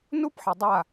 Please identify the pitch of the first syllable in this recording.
high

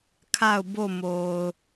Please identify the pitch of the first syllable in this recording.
falling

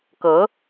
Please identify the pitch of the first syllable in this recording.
rising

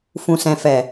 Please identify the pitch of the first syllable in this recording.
low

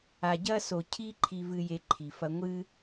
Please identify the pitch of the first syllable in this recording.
low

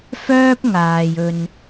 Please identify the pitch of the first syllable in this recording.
high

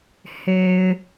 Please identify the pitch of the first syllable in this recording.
low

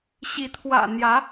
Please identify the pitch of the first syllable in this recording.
rising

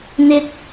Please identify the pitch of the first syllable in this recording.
high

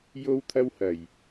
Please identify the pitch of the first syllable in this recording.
high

